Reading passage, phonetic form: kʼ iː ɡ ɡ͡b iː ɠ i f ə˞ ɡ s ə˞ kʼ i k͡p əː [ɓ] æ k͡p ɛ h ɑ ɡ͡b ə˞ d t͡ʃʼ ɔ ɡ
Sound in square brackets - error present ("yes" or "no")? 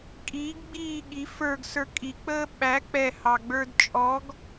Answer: no